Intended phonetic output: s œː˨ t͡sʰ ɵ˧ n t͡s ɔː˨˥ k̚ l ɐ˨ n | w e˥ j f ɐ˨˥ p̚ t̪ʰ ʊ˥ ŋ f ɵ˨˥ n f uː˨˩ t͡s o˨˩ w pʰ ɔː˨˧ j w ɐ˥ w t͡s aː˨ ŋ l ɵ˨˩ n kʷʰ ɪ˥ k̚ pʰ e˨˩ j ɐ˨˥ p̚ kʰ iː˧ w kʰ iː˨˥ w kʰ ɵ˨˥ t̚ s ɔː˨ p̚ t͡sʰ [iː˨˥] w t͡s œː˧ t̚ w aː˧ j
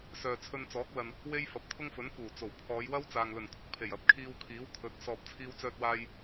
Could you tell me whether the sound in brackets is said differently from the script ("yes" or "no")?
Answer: yes